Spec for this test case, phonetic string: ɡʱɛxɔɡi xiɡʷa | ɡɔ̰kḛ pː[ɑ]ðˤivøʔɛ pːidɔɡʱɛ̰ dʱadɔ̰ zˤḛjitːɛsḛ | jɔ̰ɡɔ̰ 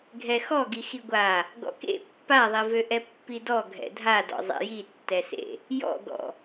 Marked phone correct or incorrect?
incorrect: a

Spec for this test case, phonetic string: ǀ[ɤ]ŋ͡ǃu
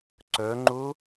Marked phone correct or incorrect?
incorrect: ɵ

